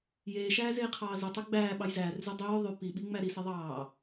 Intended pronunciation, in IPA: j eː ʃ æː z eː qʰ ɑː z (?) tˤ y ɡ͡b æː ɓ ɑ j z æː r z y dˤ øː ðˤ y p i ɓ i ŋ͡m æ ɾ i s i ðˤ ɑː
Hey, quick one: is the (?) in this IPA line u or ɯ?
ɯ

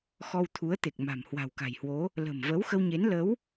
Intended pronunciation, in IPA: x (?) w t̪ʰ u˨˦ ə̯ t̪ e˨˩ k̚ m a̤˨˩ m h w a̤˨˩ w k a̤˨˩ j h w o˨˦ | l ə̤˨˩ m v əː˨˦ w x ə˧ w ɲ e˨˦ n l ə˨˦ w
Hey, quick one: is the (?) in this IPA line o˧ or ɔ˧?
ɔ˧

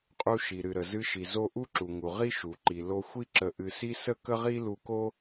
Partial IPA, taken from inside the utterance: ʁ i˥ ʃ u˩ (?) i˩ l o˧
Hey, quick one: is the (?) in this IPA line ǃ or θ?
ǃ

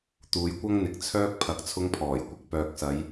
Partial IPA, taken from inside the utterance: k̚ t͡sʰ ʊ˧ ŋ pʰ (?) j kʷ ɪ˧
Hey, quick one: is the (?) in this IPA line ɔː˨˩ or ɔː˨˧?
ɔː˨˩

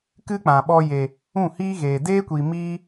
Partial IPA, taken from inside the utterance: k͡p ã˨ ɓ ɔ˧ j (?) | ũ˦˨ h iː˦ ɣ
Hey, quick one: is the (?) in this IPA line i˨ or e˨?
e˨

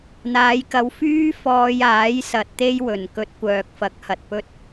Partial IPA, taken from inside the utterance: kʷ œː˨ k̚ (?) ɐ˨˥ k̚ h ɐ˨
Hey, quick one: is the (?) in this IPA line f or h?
f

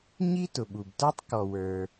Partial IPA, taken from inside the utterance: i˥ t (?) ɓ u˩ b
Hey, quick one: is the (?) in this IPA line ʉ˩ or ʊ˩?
ʊ˩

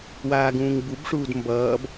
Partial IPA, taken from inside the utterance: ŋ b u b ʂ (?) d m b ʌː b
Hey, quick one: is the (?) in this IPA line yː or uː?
uː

